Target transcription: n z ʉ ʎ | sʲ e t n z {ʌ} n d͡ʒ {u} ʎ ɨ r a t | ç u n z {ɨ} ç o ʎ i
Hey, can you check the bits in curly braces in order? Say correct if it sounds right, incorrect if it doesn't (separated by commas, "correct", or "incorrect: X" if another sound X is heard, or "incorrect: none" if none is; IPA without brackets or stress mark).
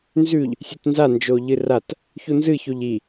incorrect: a, incorrect: o, correct